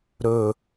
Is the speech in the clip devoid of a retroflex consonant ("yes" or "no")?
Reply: yes